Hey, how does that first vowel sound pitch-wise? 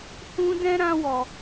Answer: high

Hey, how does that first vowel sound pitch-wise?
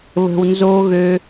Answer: low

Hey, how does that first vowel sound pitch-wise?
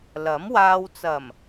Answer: rising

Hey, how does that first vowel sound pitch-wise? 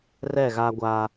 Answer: falling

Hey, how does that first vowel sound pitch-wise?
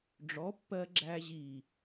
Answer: rising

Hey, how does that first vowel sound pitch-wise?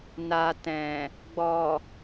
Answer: low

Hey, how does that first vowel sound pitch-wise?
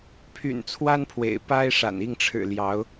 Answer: low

